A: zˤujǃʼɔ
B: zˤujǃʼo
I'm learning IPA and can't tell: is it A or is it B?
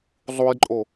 B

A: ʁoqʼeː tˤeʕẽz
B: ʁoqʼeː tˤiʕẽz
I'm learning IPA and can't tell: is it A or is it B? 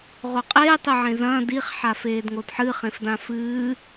A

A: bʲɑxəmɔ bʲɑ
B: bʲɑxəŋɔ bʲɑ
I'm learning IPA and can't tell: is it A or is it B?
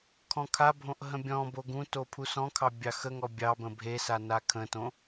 B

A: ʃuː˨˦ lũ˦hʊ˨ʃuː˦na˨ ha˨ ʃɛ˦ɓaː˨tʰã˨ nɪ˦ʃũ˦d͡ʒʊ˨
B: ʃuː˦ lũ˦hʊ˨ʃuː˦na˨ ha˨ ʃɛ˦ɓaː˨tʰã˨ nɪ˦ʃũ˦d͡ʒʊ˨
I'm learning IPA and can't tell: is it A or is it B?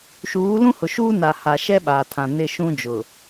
A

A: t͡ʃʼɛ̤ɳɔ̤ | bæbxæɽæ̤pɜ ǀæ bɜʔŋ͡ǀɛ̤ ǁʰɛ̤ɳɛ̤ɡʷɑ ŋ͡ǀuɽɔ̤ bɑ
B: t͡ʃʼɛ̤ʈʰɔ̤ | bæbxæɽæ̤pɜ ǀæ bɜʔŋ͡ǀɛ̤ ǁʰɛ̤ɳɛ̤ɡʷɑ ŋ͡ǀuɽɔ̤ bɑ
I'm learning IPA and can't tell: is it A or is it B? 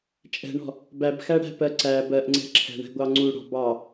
A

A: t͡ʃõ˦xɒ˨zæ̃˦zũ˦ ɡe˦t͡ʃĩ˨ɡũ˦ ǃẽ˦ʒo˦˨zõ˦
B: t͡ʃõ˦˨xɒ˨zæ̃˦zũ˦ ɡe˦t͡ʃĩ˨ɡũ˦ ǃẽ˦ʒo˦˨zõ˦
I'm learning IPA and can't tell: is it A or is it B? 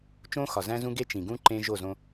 A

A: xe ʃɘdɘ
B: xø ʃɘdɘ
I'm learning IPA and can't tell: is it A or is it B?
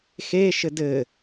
A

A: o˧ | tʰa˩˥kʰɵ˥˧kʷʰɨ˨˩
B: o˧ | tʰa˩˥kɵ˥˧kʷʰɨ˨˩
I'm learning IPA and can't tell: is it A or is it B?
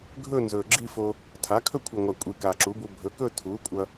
A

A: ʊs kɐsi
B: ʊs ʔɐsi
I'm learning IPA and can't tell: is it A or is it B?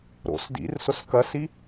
A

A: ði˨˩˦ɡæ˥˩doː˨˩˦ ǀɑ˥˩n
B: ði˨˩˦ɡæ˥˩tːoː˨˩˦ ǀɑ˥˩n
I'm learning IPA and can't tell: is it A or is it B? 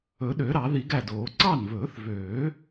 A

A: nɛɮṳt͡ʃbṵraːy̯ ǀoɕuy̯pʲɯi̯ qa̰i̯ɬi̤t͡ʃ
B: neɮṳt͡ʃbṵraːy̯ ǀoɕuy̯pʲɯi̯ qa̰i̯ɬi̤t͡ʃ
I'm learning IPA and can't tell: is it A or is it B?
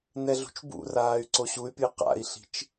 A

